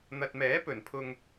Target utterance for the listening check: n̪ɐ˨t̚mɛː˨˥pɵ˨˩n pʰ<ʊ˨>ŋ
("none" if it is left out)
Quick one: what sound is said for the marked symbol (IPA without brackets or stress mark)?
ʊ˨